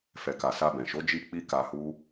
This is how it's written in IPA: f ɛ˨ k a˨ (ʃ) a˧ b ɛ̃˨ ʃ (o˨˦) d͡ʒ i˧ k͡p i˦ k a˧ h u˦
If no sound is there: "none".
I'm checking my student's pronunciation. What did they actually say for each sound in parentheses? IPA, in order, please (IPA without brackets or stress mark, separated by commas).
s, o˨˦